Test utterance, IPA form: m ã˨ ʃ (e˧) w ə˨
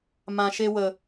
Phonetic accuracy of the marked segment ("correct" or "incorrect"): correct